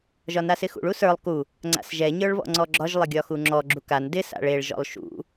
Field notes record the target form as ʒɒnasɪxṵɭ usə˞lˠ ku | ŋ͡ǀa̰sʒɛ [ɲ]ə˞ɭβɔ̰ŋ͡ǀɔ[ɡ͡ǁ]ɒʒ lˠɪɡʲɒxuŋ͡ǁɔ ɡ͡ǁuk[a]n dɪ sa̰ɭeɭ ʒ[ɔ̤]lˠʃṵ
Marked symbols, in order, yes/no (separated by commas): yes, yes, yes, no